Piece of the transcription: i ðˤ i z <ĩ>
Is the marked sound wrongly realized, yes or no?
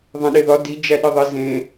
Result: yes